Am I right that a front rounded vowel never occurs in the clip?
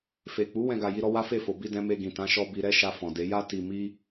yes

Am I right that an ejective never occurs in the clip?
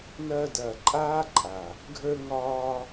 no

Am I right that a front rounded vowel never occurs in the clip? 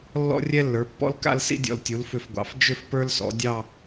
no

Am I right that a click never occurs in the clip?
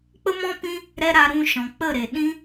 yes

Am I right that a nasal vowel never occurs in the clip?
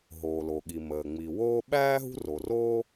yes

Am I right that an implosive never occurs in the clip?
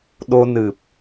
no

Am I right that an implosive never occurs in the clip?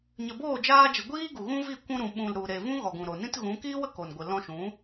no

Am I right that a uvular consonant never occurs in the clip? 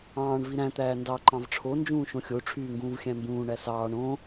yes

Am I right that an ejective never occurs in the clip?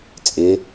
no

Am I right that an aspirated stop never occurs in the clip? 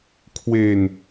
no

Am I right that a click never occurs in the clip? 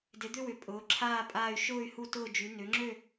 no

